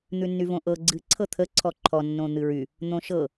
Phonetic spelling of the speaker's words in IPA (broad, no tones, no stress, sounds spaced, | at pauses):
n̪ ʉ nː y v õ ʔ ɤ ɡ͡ǀ ɨ ǀʰ ɤ t̪ʰ ə ǀʰ ɔ ǃʰ ɔ nː õ n̪ ɨ ɹ y | n̪ õ ʃ ɤ